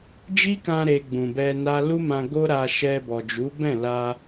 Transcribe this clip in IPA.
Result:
d͡ʒ i˦ k ã˧ ɾ e˧ ɡ͡b ũ˨ b ɛ˧ n a˦ l u˦ m ã˧ ɡ o˦ ɾ a˧ ʃ ɛ˧ b ɔ˨ d͡ʒ u˨˦ b ɛ̃˦˨ l a˧

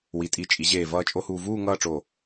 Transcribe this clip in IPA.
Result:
w i˩˧ tʼ i˩˧ t͡ʃʼ i˩˧ ʑ eː˧˩ v ʌː˥˧ t͡ʃʼ o˥ h uː˧ v uː˥˧ ŋ ʌː˥˧ ʈ͡ʂ o˧˩

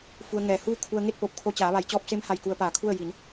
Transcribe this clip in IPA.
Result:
f u˧ ə̯ ŋ ɛː˧˩ h uː˥˨ kʰ u˧ ə̯ ŋ e˥˨ t̚ p o˧˩ p̚ kʰ o˧ t͡ɕ aː˩˧ ʋ a˩˧ j t͡ɕ ɔː˧ p̚ s e˧˥ m h a˧˩ j k u˧ ə̯ p aː˧˩ kʰ u˥˨ ə̯ j i˩˧ n

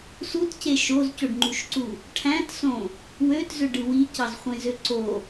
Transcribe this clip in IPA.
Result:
s u t c e ʃ o z c o ɖ ŋ͡ǃ u ʃ ǀ u | ʈʰ æ̃ t s õ | w ø t z ø ɖ ɯ w i c ɑ z χʷ ẽ z ø ǀ o

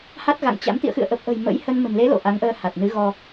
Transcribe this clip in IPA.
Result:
h a˦˥ t̚ ɣ a̰˧˨ ŋ t͡ɕ a̰˧˥ m t̪ ḭ˧˨ ə̯ x ɨ̰˧˨ ə̯ ʔ ə˨˩ p̚ ʔ ə̤˨˩ j m ə̰˧˥ j h ə˧ n m ə̤˨˩ n l e˨˦ l o̰˧˨ ʔ a˨˦ ŋ ʔ əː˧ h a˨˩ t̚ n ɨ˨˦ ɣ ɔ˧

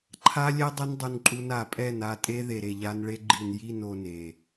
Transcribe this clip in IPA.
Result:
ǃʰ a˧ lʲ ɛ˧ dˤ ɯ˦ n dˤ u˧ n ǃʼ u˧ n a˨ pʼ ɛ˦˨ n a˧ tʼ e˦ ð e˨ ɾ e˨ ʎ a˧ n ɭ e˦ ɡ͡ǃ i˨ n j i˦˨ n o˧ n e˨

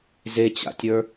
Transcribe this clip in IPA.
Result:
z e t͡ɕ a̰ tʲ ə˞

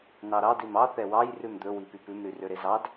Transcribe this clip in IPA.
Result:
n ɑ ɾ ɑ d i m ɑ θ ɛ w ɑ j r ʉ m d̪ ɵ w i p y p ʉ m ɾ y r ø ɾ e z ɑ d

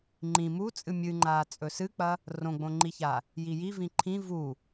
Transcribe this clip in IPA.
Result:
ŋ͡ǃ ĩ m u t͡sʼ ɨ mʲ ɨ ŋ͡ǃ aː t͡sʼ ɵ s ɨ k͡p ɐ | r õ ɡ͡b õ ŋ͡ǃ i ç a | j i j i v ĩ ǃʰ ĩ v u

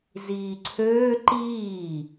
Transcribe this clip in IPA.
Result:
z iː ǀʰ øː ǃ iː

